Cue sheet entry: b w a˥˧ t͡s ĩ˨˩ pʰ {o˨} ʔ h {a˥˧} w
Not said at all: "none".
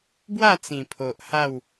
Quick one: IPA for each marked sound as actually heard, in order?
o˨, a˥˧

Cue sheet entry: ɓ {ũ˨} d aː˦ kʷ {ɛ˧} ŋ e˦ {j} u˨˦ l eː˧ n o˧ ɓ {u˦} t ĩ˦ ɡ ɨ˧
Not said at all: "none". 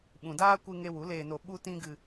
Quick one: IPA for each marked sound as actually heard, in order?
ũ˨, ɨ˧, w, u˦

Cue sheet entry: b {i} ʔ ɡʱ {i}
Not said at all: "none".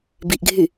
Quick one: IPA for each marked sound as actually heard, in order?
i, y

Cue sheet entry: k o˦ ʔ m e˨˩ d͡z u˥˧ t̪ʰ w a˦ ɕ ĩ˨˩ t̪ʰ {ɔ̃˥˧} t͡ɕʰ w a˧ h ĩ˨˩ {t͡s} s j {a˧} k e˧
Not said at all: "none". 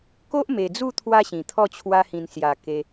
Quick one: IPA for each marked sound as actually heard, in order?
ɔ˥˧, n, a˨˩

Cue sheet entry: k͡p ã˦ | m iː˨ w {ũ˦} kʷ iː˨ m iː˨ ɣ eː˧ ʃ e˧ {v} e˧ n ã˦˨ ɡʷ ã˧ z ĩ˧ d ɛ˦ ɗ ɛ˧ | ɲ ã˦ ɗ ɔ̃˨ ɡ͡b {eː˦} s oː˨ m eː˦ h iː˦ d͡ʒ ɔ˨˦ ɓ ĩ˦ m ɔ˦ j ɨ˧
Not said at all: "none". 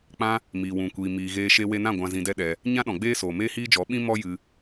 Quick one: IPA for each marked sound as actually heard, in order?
ũ˨, w, eː˦

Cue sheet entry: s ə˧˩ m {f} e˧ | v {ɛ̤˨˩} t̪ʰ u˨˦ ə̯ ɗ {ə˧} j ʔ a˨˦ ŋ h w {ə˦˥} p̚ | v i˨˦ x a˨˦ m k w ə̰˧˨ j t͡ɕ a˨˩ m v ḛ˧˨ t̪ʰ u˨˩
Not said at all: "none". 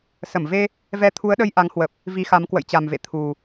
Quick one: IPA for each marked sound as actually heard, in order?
v, ɛ˧, ə˧, ə˨˩

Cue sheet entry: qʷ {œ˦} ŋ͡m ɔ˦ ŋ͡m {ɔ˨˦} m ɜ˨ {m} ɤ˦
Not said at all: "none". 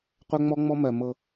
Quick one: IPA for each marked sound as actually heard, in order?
œ˦, ɔ˦, m

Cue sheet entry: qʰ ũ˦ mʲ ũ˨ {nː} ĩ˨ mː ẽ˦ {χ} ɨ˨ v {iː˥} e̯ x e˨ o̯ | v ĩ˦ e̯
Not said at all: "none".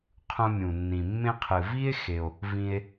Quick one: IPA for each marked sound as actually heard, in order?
nː, qʰ, i˥

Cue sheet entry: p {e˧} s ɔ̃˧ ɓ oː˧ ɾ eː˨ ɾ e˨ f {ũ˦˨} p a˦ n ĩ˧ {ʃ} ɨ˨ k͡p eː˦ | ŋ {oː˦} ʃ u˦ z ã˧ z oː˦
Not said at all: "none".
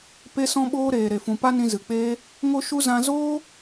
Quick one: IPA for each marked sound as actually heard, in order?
e˧, ũ˨, z, o˦

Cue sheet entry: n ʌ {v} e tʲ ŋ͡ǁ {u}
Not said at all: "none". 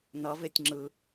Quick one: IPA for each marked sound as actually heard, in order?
v, ɯ

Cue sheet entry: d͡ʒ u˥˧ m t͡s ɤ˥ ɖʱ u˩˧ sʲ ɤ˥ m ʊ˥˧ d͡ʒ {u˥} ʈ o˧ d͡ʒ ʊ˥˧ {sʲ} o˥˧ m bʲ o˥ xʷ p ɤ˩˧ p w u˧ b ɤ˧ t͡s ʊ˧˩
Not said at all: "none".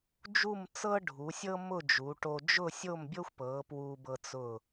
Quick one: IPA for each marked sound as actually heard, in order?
u˩˧, sʲ

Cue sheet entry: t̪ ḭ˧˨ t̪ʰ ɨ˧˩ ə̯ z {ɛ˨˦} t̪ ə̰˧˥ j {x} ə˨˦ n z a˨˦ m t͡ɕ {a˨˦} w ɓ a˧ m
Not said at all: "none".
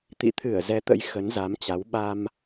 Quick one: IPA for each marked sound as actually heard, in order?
ɛ˨˦, x, a˨˦

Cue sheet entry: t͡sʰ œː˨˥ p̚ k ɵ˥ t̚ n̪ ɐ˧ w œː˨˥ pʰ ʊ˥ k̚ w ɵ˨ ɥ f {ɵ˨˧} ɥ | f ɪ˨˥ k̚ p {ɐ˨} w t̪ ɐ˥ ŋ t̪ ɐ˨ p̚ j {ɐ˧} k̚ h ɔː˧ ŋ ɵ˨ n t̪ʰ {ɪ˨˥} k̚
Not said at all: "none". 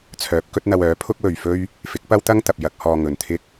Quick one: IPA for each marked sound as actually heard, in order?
ɵ˥, ɐ˥, ɐ˧, ɪ˥

